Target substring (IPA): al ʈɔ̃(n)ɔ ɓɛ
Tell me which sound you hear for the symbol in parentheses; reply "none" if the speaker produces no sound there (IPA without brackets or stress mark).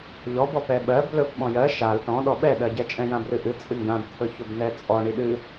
ɗ